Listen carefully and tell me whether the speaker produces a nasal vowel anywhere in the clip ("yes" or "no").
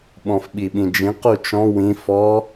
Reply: yes